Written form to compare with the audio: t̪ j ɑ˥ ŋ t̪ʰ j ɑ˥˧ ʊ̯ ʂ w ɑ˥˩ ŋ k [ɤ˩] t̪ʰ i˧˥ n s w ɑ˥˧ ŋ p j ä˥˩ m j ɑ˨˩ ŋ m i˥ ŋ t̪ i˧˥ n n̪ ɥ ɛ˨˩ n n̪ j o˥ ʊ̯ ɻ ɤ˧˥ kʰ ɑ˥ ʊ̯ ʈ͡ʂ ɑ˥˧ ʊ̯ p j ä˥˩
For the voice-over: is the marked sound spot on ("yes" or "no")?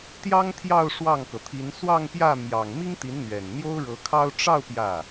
yes